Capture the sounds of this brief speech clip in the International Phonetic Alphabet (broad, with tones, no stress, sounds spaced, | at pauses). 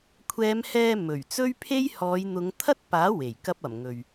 kʷʰ ɛː˨˧ m h ɛː˧ m ɵ˨˩ ɥ t͡s ɵ˥ ɥ pʰ e˥ j h ɔː˨˧ j n̪ ʊ˨˧ ŋ t̪ʰ ɐ˥ t̚ p aː˨˥ w e˨˩ j k ɐ˥ p̚ ɐ˨˩ m ŋ ɵ˨ ɥ